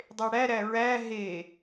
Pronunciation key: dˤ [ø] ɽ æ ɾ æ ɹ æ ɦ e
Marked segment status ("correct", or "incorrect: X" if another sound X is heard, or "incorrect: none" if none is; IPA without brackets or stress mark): incorrect: e